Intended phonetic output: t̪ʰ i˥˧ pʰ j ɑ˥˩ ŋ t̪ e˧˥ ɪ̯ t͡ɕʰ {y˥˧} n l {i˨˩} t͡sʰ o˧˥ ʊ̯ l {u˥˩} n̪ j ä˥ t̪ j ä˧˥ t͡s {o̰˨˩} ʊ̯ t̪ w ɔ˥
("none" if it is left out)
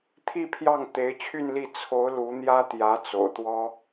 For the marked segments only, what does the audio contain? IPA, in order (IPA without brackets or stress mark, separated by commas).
y˥˧, i˥˩, u˧˥, o̰˨˩